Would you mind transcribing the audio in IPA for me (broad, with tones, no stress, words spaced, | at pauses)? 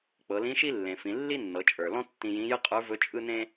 k͡pɤ˩˧lĩ˧˥ʃi˥ lːẽ˩fĩ˩˧ lːi˥nːɤ˩˧t͡ʃʼə˞˩lɔ̃˥ tːĩ˧jĩ˧˥jɯ˥ qʼə˞˧˥vɵ˧˥ t͡ʃʼɯ˥nẽ˥